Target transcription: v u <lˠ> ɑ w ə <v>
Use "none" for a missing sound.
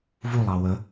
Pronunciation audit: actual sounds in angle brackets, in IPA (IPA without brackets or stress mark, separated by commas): lˠ, none